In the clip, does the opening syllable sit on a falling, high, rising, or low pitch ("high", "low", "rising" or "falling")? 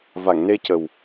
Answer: low